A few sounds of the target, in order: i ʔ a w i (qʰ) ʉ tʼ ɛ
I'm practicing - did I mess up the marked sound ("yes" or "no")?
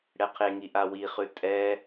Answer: yes